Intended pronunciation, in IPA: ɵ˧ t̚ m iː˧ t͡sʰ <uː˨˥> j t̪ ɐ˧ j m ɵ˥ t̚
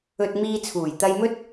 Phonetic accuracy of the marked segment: incorrect: uː˨˩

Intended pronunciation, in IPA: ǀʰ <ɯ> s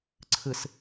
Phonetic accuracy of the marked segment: correct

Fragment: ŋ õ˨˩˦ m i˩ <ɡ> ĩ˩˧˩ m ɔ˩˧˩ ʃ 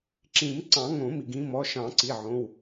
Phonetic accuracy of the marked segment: correct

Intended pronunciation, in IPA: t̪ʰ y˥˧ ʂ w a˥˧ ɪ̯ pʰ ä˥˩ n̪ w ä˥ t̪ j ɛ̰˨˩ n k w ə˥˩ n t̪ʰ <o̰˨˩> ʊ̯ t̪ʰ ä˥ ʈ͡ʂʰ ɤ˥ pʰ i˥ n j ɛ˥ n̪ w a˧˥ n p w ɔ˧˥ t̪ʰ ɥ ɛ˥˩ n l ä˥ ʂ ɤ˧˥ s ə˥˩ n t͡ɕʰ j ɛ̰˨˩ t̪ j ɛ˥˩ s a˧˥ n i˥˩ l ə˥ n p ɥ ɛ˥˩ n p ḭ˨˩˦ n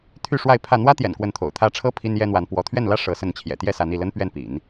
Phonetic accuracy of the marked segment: correct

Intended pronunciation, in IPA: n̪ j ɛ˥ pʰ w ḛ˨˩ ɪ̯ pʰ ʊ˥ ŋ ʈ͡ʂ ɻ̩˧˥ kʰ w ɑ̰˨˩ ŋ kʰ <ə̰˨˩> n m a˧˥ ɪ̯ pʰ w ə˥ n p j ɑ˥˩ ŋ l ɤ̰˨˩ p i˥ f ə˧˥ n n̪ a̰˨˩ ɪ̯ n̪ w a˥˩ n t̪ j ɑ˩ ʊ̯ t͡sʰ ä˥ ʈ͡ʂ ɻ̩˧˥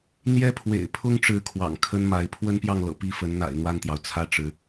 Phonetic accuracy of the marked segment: incorrect: ə˥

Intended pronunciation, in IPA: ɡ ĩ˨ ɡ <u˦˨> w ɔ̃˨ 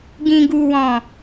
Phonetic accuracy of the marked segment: incorrect: u˨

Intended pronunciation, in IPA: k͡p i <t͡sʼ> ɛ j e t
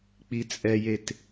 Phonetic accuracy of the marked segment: correct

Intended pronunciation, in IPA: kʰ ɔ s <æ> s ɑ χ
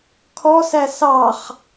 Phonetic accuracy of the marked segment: correct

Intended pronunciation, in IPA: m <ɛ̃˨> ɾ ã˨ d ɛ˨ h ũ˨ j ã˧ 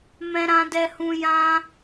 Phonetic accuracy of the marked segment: correct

